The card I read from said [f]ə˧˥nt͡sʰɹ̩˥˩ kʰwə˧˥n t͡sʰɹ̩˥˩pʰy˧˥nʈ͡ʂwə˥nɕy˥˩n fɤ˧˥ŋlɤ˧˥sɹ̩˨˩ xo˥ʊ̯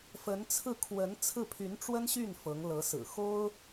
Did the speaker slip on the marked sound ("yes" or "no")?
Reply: no